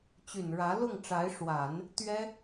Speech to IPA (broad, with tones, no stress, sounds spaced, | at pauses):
t͡ɕ y˨˩ n ɻ ä˧˥ l ʊ˥˩ ŋ ʈ͡ʂ a˧˥ ɪ̯ ʂ w a˨˩˦ n | t̪ ɥ ɛ˥